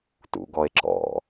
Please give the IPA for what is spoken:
tṵɡɔe̯ǁɔ̰

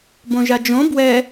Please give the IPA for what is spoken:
bõʒad͡ʒõ bwɛ

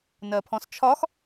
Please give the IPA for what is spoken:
nɜpʰɔ̃st͡ʃʰɒx

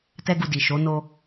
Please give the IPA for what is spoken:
tɛ˦ɡu˧di˨ ʃo˨˦ no˦

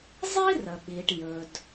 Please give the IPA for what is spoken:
zˤi˥rə˩ɓi˩ʈ jɵ˩d

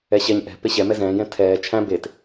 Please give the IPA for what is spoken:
ɛɕɛɲ ʔɛ̤ peɕɛ mɛzɛ̃ːjɛ̃ tʰɛː t͡ʃʰæ̃ bet

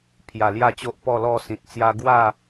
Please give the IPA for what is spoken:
pʰja˨˩lja˥˧t͡ɕo˦ʔ pɔ˥˧lɔ˥˧sĩ˨t̚t͡sja˦ ɡwa˥˧

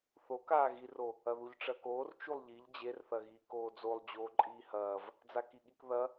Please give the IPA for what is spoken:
θokaː ɣiro | ɐðuʎʈ͡ʂɐːkoːr t͡ʃulˠʎiʎ d͡ʑerθɐɣiː koːd͡zolˠ d͡ʑoːǃʼiːhɐːv | d͡zakiɠikðɐ

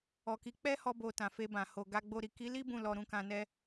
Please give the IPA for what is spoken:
ɔ˨ki˨˦ k͡pɛ˦hɔ˧ bo˨ tã˨fe˧bã˨ho˨ ɡa˧ ɡ͡bo˨ɾi˨ki˨˦li˦ bũ˦˨lɔ˧ɾũ˧ kã˧nɛ˧

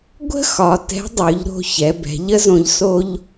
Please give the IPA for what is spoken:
ɡʷə̤˥xɒ˩˧ tɛ̤˧˥dˤʉ˩˧ʎɾo̤˧ çɛ˩˧bɛ̤˩˧ʎə˥zõ˧ʎ so˧ʎ

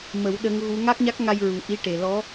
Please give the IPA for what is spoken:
mə˨˩˦w ɗə˧˥ŋɣu˧˥ ŋa˦˥k̚ɲa˦˥k̚ŋa˧j ɹu˨˩˦ ʔi˧˥ ʈe˨˩lɔ˧˥

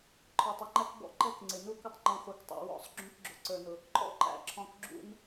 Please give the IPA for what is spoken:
ǃʰə˞˨tˤʊ˦ŋ͡ǃæ˦kbɔ̰˦˨ ǃɛ˦kŋ͡ǀɪ˨nu˦kʊ˦tˤ ŋ͡ǃũ˨χʷə˞˨ktˤɛ̰˨ wɔ̰˦sˤ ɡ͡ǁũ˦k ɡ͡ǁʊ˨ǀə˞˨nʊ˨ | ǃʼɔ̰˦ǃæ̰˨ǁʰɔ̃˨k ɡ͡ǁṵ˦n

